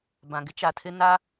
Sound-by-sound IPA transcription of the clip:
b ã˨ ɡ ɪ˦ t͡ʃ a˨ tʰ ɪ˦ n a˦

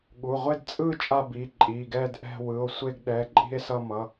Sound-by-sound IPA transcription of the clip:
ɠ u˩˧˩ ʁʷ e˥˧ d t͡sʼ ɯ˥˧ t͡ʃʼ a˥˧ b i˩˧˩ ǃʼ i˩˧˩ ɡ ɛ˥˧ d ʔ ɛ̤˥˧ w ɯ˩˧˩ o̯ sʷ e˥˧ ɡ ɗ ɛ˩˧˩ ǃʼ i̤˥˧ e̯ s ʌ˥˧ m ʌ˩˧˩

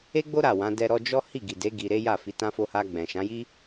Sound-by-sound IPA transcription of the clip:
e˦ ɡ͡b o˦ ɾ a˦˨ w ã˨˦ d ɛ˧ ɾ ɔ˧ d͡ʒ ɔ˦ h i˦˨ ɡ i˨ d e˨˦ ɡ i˧ ɾ e˦ j a˦˨ f i˨˦ t ã˦ f o˧ h a˧ ɡ͡b ɛ̃˨ ʃ ã˨˦ j i˦

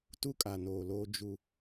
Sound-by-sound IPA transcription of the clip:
t u˦ kʼ a˨ n oː˨ l oː˦ d͡ʒ u˦

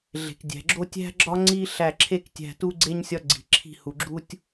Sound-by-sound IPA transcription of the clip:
ɮ e̤˨ k dʲ æ̤˨ ɡ͡ǁ o˥ tʲ æ̤˥ ɡ͡ǁ ɒ˥ ŋ͡ǀ i˥ ɬ æ˦˨ ǁʰ e˥ k tʲ æ̤˦˨ t u˥ ɡ͡ǀ e˥ ɲ sʲ ɒ˥ ɡ͡ǀ i̤˨ ǁʰ i̤˦˨ h u˨ ɡ͡ǁ u˥ tʲ

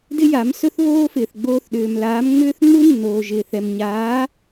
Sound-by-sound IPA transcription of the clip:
d ɪ˥ j a˩˥ m s ɵ˥ θ β oː˥ f ɪː˩ θ ɡ͡b oː˧ θ ɗ ʏː˩ m l aː˩˥ m ŋ͡m ʏː˥ θ ŋ͡m u˥ nː oː˩ ʒ ɪː˩ θ ɛ˩ m ɲ aː˩˥

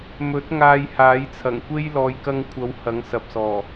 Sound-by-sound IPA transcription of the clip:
m ɵ˨˥ t̚ ŋ aː˧ j h aː˨˥ j t͡sʰ ɐ˨˩ ŋ kʷ e˥ j l ɔː˨ j k ɐ˧ ŋ kʷʰ ɐ˨˧ w h ɐ˨˥ ŋ s ɐ˨ p̚ s ɔː˨˩

